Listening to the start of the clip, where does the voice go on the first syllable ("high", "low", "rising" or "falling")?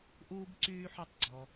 high